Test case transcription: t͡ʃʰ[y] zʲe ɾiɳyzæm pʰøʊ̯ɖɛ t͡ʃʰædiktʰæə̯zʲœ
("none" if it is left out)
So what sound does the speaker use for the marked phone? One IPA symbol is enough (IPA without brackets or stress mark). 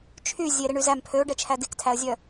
y